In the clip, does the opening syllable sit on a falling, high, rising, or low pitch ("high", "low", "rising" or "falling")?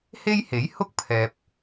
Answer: high